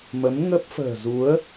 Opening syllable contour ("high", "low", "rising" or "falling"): rising